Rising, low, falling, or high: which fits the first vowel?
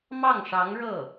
falling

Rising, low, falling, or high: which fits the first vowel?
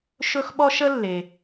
high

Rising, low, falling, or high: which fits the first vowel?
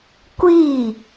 falling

